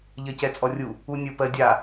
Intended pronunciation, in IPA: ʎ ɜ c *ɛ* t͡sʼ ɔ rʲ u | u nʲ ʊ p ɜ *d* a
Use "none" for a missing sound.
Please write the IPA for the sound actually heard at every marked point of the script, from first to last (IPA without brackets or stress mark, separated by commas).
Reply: ɛ, dʲ